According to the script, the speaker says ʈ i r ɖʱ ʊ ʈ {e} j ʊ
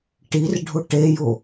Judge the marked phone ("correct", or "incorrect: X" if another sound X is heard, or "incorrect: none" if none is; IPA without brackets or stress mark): correct